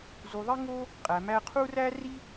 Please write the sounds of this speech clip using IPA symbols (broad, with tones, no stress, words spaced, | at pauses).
zu˩ ðˤi˥ŋo˥ | qʼæ˩mæ˧ qʰu˥ ræ˥ri˥